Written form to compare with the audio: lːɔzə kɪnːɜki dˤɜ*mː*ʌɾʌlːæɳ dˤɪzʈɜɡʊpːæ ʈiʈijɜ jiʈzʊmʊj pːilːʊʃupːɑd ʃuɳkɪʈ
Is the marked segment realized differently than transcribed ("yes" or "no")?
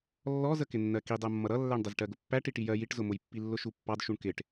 no